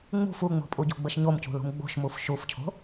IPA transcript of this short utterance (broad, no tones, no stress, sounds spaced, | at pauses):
ŋ͡m ṳ f u ŋ͡m o̤ pʼ u ɟ o̤ ɡ͡b ə ʃ ɲ o m c ṳ l ṳ m ɡ͡b o̤ ʃ m u f ʃ u f cʰ o̤